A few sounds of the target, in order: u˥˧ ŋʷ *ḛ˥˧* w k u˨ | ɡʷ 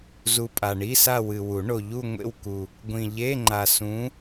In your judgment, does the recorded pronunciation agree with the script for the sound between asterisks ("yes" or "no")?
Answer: yes